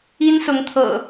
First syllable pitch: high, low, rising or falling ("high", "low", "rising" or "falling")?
high